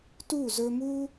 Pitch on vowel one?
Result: falling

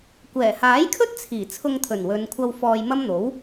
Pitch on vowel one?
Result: low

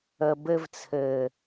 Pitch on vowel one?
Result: low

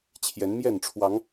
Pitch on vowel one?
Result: rising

